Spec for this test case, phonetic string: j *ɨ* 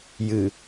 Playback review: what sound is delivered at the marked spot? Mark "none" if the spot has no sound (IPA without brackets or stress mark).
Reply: ɨ